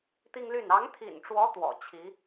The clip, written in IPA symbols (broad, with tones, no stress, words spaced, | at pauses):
t̪i˥ŋly˥˩n ɑ˧˥ŋt̪ʰḭ˨˩nʈ͡ʂwɔ˧˥ t̪wɔ̰˨˩t͡ɕʰi˧˥